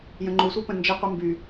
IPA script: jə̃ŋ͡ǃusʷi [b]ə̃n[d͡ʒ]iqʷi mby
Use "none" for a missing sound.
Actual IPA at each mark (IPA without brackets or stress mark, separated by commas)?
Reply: p, d͡ʒ